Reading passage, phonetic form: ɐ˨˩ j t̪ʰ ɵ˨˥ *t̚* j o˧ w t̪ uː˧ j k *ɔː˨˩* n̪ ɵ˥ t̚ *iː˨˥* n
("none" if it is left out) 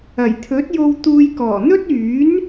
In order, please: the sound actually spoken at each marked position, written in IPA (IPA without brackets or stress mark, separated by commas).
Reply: t̚, ɔː˨˩, yː˨˥